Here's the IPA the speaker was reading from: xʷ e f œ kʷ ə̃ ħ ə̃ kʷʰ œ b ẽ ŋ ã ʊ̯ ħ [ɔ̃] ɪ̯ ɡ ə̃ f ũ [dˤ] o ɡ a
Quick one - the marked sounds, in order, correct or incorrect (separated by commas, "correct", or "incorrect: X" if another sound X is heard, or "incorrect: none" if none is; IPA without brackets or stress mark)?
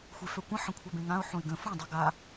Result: incorrect: õ, correct